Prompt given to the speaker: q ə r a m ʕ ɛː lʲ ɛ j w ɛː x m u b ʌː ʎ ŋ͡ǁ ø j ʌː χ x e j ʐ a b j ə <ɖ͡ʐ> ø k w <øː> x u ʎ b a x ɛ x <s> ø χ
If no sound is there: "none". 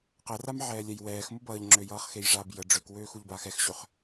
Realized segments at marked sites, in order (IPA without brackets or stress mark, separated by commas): ɖ͡ʐ, øː, ɕ